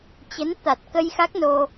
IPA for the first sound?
t͡ɕ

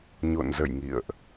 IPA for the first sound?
ɲ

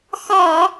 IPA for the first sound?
x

